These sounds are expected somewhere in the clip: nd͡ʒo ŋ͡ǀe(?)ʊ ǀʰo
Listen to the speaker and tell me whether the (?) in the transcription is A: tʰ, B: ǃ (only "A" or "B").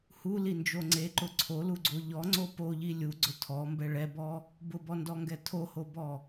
B